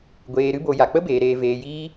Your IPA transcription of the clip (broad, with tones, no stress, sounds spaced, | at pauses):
ɡʷ eː˧ ɾ ɨ˦ b o˧ j a˨ k͡p ə˦ b eː˧ ɾ eː˧ v eː˧ j iː˦